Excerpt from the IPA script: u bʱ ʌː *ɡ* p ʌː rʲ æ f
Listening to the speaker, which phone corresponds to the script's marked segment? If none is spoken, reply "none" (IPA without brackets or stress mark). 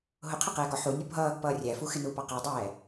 ɡ